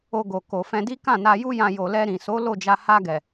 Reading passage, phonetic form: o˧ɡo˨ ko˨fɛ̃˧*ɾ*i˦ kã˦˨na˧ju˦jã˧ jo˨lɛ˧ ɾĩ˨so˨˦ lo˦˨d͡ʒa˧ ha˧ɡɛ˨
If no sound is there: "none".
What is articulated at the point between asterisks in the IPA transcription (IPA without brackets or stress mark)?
d